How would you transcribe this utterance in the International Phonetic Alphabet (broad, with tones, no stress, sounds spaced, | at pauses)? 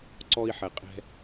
ǀ ɔ˧ i̯ ħ ɛ˨ qʼ ɛ̤˧